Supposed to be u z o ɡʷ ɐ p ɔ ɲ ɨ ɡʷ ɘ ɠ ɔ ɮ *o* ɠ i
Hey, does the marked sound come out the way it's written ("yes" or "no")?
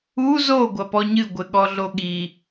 yes